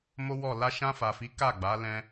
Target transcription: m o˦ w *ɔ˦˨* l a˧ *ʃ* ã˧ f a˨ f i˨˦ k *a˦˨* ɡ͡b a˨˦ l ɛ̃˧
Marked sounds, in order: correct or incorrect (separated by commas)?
correct, correct, correct